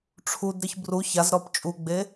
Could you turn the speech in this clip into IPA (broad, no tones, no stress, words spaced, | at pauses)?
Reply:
ʈ͡ʂʰudɾɨç bru çazɾɔp t͡ʃʼuɡ͡be